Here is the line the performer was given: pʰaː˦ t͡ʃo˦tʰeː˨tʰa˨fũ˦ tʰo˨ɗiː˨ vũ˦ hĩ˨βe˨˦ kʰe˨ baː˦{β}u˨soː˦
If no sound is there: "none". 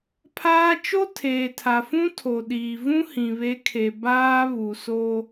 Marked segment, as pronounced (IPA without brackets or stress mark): β